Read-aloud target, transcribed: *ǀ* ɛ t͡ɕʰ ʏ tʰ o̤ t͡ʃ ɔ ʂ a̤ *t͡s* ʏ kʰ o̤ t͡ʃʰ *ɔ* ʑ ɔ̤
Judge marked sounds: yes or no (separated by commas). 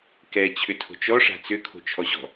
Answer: no, yes, yes